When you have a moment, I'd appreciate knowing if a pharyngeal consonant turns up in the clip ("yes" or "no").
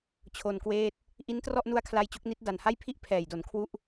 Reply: no